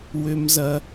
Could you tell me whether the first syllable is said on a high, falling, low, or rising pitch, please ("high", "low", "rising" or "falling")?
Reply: high